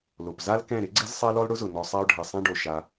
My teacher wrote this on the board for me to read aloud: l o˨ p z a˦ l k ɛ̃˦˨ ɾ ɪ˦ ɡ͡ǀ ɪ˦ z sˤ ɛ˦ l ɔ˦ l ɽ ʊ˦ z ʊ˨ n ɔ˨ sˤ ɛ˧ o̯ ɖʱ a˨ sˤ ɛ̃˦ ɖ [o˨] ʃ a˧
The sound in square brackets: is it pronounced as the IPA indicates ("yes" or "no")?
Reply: yes